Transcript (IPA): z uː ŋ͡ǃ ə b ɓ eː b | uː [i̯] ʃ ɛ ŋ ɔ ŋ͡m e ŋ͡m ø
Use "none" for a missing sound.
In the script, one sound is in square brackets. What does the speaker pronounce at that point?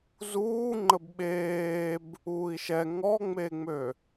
i̯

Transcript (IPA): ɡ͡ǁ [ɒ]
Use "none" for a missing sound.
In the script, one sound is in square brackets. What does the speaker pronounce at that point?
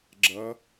ʌ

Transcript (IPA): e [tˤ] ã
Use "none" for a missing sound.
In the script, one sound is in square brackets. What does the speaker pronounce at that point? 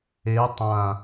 tˤ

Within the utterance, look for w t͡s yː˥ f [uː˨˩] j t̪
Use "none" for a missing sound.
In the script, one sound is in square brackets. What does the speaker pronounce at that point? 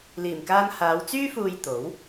uː˧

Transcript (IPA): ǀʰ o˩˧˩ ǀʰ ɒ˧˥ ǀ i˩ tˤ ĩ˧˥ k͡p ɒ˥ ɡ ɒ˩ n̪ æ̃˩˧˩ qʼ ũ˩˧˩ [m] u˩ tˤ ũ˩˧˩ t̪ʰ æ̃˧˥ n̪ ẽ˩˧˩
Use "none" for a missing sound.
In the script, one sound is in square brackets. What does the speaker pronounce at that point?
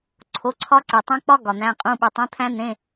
ɓ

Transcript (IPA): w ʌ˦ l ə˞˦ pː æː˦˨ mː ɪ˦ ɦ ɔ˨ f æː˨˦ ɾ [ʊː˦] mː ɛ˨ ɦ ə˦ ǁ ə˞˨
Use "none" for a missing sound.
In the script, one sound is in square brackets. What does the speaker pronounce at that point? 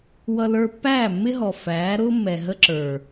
ʊː˦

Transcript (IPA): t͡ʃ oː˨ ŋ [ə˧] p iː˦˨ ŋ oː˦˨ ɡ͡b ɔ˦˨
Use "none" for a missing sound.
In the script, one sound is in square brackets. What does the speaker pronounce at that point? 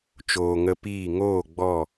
ə˧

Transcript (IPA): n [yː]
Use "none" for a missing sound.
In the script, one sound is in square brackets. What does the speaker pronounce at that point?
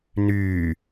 yː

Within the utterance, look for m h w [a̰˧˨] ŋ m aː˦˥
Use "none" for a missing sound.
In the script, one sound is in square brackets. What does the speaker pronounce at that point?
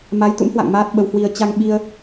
a̰˧˨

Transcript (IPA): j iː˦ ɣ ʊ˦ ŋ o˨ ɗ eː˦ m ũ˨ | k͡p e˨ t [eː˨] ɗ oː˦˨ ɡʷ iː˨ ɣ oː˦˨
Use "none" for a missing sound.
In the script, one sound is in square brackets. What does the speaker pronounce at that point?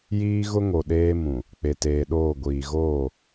eː˨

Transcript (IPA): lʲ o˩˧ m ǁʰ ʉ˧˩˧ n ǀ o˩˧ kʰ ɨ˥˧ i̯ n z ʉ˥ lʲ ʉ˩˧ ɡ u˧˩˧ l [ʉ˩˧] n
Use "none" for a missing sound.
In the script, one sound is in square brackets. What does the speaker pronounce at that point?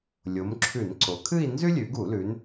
ʉ˩˧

